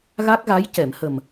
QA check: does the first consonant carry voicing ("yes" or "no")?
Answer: yes